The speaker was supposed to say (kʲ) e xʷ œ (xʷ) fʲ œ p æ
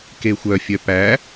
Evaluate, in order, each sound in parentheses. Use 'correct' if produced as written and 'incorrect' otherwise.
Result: incorrect, incorrect

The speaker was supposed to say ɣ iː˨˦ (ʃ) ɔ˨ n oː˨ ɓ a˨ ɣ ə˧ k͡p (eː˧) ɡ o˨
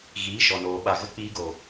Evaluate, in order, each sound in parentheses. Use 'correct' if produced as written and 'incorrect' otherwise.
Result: correct, incorrect

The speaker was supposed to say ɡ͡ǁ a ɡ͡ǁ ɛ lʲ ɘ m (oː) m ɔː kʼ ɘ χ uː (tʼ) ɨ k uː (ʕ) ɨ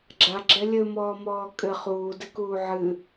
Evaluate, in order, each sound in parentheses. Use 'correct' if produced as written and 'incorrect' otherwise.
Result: incorrect, incorrect, correct

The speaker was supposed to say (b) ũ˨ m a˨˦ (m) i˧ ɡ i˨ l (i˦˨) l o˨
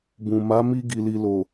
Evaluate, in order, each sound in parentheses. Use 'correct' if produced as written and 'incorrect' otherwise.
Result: correct, correct, incorrect

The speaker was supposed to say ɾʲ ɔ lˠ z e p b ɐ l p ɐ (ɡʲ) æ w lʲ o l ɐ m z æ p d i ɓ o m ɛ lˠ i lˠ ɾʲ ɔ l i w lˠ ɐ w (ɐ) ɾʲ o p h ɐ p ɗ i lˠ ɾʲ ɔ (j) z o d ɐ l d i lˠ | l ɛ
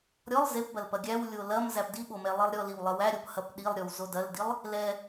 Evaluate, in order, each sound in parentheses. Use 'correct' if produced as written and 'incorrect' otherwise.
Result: correct, incorrect, incorrect

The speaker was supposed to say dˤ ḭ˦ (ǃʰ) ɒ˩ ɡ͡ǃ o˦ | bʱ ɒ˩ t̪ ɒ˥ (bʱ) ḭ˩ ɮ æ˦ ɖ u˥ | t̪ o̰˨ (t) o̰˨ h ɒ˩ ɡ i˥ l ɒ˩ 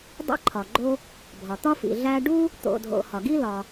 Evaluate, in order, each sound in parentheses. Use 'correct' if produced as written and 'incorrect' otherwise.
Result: correct, incorrect, incorrect

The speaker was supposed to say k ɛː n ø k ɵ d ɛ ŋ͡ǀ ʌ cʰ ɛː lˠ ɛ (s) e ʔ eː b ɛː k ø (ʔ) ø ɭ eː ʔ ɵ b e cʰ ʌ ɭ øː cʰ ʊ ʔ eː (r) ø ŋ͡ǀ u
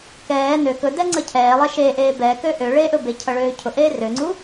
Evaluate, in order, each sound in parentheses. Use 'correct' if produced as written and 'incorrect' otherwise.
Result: incorrect, correct, correct

